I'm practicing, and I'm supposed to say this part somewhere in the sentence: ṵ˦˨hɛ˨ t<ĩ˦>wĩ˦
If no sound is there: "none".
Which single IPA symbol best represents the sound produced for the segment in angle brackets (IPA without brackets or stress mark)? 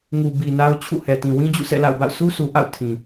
ĩ˨